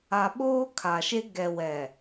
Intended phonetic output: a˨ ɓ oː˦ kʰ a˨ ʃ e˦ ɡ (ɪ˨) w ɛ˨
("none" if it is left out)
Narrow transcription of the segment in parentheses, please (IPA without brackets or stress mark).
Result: ɛ˨